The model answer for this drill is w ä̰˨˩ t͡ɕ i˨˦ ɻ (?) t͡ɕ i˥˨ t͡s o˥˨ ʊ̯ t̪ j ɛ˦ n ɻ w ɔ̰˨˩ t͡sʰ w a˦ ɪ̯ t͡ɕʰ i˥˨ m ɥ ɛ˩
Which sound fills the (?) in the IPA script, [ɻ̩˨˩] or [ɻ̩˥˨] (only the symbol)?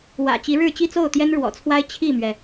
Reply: ɻ̩˥˨